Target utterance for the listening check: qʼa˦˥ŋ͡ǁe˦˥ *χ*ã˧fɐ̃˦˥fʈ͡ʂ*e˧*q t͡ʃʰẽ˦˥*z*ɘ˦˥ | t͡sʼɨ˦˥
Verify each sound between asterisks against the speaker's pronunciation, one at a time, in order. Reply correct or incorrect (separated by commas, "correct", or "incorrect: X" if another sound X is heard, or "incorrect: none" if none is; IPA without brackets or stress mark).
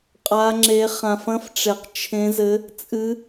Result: correct, correct, correct